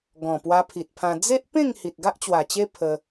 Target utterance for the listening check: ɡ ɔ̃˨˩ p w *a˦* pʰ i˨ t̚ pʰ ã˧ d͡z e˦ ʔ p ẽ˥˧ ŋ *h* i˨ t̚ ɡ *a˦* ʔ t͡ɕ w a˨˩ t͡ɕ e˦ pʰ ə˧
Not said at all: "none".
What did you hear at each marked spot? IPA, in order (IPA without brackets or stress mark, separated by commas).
a˧, h, a˦